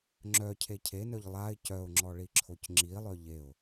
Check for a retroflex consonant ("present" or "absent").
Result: present